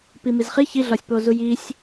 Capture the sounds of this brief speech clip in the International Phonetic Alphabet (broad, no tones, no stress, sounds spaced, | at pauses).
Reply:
p i m i z χ i ç i ɮ ɒ sʲ p oː z u j i sʲ